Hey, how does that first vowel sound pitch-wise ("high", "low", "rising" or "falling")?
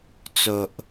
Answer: low